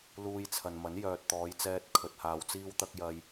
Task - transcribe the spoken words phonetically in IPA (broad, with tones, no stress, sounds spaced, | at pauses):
l uː˧ j t͡sʰ ɐ˨ n m ɐ˨˥ n j œː˨ t̚ t̪ ɔː˨˧ j t͡s ɛː˧ t̚ kʰ ɵ˨ t̚ h aː˨ w t͡s iː˧ w t̪ ɐ˧ k̚ j ɐ˧ j